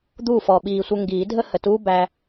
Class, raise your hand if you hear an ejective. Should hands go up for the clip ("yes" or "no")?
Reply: no